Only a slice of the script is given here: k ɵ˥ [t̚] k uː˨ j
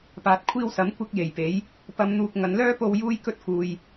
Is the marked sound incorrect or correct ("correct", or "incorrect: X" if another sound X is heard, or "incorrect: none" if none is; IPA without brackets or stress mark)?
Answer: correct